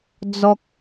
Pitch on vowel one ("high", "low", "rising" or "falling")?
high